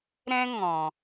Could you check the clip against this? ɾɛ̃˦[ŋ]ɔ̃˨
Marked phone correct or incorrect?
correct